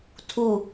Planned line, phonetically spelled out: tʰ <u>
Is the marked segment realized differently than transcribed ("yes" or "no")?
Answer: no